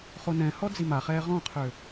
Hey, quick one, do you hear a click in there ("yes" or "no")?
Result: no